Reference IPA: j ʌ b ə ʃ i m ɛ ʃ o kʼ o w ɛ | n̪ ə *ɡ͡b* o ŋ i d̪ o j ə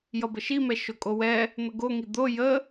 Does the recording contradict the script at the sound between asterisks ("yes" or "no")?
yes